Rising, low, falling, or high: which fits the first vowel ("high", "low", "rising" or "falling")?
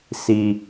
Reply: low